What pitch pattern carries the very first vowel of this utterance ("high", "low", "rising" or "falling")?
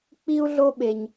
high